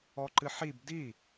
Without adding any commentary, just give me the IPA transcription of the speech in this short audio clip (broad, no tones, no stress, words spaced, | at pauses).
ɔǃɨħib di